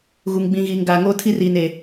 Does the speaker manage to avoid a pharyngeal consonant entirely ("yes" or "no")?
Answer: yes